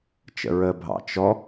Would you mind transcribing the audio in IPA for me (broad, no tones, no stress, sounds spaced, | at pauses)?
t͡ʃ ə̰ ɹ ə bʱ ɑ̰ t͡ʃ ɔ